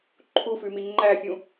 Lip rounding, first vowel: rounded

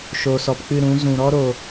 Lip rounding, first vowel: rounded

